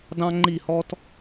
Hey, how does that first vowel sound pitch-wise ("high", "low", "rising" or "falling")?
high